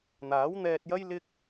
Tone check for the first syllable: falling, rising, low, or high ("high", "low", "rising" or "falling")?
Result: rising